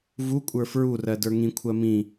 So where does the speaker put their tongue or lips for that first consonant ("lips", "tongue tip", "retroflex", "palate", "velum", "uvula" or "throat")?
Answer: lips